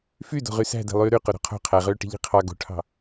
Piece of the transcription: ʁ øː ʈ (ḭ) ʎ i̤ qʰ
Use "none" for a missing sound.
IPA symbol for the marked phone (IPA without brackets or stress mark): i̤